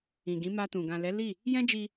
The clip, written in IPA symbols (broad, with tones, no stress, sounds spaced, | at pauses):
ĩ˨ ɡ ĩ˨˦ m a˧ t ũ˨ ɡ ã˨ l ɛ˨˦ l i˦˨ | j ɛ̃˦ d͡ʒ i˧